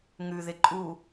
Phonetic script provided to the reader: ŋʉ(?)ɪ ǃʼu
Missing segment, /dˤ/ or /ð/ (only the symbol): ð